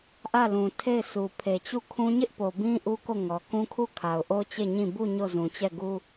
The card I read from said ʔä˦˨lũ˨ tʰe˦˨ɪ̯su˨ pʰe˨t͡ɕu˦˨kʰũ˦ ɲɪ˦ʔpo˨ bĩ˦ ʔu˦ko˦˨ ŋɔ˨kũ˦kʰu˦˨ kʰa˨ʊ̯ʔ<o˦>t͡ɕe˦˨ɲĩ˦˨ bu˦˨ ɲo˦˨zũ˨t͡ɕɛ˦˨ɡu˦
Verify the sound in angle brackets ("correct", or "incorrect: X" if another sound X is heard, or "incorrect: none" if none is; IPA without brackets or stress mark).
correct